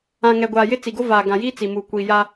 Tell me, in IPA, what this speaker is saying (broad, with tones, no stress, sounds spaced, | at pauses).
ã˨ ŋ ɛ˨ ɡʷ aː˨ j ɪ˦ t͡s i˨ ɡ o˦ v aː˨ ɡ ã˨ j iː˦ t͡s i˨ m uː˨ kʷ iː˨ j a˦